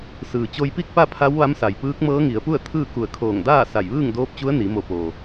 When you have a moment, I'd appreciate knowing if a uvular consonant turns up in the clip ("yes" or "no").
no